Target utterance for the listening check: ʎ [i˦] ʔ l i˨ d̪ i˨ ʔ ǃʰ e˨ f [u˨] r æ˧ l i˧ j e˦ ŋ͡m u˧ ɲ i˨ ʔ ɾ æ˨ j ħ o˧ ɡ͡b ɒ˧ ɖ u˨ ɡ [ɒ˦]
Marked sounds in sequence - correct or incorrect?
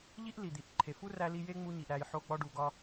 correct, incorrect: u˦, incorrect: ɒ˧

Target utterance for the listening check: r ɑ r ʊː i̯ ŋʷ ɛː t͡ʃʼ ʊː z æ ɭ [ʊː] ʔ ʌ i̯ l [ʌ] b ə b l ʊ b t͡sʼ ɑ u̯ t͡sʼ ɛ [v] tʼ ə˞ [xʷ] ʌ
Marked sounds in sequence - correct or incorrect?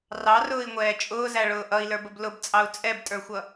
correct, incorrect: ə˞, incorrect: b, correct

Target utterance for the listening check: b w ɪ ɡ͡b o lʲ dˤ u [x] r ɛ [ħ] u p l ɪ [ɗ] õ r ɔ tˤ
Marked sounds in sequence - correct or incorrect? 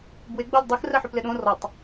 correct, correct, correct

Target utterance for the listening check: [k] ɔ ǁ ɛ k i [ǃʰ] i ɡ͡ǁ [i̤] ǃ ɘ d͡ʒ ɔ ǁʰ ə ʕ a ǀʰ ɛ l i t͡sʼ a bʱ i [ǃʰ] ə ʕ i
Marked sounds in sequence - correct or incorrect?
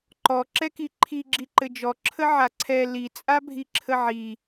incorrect: ǃ, correct, incorrect: i, incorrect: ǁʰ

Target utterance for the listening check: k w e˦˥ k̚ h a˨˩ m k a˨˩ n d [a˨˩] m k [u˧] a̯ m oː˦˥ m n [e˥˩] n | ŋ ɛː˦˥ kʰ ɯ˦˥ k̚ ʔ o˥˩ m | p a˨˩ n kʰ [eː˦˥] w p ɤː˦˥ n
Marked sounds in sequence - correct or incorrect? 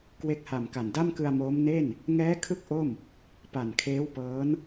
incorrect: a˥˩, incorrect: ɯ˧, correct, correct

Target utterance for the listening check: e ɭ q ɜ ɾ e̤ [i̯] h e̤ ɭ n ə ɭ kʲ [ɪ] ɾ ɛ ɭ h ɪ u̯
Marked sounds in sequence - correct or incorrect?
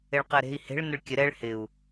correct, incorrect: ə

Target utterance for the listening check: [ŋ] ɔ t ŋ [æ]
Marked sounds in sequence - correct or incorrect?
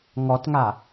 correct, incorrect: a

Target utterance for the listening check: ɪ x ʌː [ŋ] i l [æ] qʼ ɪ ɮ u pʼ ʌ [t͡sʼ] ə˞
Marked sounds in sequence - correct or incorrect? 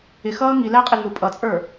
correct, correct, correct

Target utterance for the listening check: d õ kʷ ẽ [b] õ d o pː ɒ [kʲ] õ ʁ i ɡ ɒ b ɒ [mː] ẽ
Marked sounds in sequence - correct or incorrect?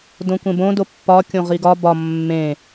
correct, correct, correct

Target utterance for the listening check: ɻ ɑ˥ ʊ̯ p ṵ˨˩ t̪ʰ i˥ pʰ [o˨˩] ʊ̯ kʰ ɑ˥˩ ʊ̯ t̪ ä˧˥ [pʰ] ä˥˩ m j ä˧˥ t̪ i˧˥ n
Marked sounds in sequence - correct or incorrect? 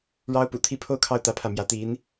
incorrect: o˥, correct

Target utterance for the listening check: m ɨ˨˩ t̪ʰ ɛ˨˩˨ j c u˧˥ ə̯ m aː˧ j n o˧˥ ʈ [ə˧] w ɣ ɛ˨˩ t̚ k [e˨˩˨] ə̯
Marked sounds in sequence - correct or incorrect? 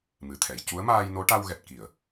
incorrect: a˧, incorrect: i˨˩˨

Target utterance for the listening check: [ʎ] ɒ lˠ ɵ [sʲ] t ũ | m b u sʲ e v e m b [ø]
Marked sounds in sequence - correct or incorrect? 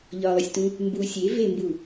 correct, correct, incorrect: u

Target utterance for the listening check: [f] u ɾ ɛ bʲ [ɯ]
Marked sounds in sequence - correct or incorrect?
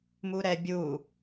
incorrect: m, incorrect: u

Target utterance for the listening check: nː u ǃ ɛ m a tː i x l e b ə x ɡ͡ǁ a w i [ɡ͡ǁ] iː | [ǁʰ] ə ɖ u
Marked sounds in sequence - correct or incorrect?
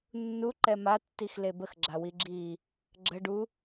correct, incorrect: ɡ͡ǁ

